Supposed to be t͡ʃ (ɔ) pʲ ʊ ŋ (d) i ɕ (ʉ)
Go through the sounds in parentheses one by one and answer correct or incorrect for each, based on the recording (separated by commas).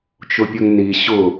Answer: incorrect, incorrect, incorrect